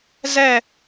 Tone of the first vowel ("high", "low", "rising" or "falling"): falling